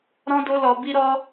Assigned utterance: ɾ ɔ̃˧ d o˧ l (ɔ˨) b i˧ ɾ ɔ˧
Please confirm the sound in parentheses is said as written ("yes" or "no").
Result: yes